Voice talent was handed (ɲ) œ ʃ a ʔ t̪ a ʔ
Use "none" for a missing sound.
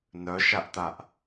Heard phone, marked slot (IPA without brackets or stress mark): n